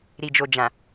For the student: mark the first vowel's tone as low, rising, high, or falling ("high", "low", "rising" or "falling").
low